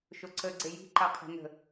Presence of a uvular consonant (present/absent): present